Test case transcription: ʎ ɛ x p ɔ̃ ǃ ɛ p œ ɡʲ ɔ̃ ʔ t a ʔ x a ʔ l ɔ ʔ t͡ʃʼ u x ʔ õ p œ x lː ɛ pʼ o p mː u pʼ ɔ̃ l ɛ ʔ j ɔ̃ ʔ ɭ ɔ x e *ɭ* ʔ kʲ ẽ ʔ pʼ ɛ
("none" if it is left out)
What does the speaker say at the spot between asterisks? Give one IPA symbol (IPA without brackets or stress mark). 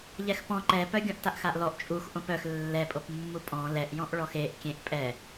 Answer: none